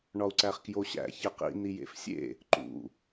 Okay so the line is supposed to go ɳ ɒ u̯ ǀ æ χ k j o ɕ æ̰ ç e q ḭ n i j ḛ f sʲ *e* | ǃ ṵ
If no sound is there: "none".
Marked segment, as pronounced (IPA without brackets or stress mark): ḛ